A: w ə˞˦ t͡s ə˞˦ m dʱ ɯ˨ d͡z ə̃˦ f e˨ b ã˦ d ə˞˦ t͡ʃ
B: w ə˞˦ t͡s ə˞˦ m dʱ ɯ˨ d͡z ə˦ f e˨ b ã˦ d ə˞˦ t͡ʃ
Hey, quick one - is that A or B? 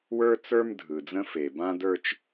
A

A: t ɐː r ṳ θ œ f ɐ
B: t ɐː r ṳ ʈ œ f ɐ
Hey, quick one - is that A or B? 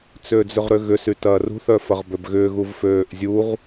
A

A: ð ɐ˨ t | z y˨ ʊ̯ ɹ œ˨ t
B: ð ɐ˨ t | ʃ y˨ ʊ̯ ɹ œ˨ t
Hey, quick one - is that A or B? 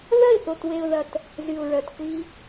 A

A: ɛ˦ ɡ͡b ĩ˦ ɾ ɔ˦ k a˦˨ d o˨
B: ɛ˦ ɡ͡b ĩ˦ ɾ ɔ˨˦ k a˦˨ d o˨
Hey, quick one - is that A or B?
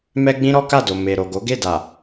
A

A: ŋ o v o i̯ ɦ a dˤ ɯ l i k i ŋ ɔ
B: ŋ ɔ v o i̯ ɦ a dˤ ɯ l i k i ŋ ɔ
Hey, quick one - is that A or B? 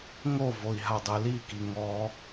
A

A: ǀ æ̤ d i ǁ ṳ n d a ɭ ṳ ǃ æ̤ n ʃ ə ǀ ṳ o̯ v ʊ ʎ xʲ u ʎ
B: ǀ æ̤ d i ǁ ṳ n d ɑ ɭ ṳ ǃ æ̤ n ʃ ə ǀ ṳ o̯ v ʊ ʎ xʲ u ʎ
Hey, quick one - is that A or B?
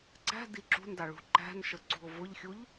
B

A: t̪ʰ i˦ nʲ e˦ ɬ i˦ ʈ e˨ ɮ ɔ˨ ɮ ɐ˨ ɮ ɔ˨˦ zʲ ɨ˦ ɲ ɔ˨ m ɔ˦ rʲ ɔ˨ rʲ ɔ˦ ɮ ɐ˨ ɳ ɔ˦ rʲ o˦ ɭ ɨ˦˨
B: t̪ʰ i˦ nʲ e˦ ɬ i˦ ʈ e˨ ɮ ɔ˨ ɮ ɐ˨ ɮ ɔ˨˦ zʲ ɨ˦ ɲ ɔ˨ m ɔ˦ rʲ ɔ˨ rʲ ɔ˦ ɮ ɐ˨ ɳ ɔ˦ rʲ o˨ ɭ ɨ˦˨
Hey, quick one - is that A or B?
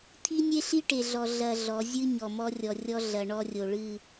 B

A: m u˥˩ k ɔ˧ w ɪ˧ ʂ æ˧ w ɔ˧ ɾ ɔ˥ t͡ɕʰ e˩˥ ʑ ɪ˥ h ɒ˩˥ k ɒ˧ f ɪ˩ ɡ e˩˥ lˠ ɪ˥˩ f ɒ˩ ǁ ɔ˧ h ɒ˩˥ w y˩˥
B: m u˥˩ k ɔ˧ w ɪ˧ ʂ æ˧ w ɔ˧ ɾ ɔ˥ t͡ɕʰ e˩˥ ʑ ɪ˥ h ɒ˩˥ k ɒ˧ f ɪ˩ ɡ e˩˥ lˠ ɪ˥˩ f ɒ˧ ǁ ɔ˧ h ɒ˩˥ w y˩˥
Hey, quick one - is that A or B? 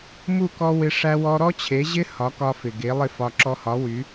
B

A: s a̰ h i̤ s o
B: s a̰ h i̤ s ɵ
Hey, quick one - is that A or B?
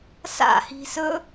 B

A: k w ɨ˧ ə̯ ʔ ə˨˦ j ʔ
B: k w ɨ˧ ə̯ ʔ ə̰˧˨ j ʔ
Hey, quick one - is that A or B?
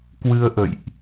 B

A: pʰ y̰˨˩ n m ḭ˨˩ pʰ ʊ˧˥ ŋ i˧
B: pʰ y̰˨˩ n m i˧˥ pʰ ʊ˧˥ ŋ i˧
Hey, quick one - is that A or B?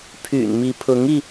B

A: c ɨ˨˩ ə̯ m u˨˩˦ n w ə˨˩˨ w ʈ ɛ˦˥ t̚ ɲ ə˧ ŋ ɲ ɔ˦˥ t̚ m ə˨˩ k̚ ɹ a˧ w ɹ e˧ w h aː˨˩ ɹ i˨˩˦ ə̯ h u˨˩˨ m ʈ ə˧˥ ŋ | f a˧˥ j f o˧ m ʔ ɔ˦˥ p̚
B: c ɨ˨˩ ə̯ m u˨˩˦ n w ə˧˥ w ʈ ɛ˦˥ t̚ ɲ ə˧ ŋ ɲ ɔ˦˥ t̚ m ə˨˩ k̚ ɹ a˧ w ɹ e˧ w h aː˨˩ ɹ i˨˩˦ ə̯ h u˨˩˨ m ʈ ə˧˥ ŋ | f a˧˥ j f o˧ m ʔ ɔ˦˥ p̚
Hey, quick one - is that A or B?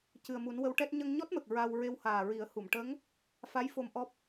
B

